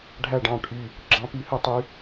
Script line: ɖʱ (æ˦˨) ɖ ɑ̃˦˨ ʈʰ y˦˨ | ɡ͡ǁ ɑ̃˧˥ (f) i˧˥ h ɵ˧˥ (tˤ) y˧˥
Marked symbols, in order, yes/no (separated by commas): yes, no, yes